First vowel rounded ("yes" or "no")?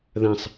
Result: no